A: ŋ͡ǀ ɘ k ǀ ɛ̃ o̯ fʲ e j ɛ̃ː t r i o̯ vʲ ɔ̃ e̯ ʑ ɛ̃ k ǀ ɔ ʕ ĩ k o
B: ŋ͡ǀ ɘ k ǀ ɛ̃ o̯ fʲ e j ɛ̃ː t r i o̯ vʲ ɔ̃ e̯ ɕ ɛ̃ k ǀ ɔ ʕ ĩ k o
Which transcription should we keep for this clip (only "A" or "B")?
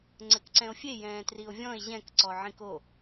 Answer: A